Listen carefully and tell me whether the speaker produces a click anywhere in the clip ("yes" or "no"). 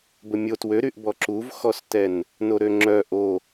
yes